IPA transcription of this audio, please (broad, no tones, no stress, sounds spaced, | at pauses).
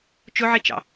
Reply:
t͡ʃ ʊ ʕ i t͡ʃ ɑ̰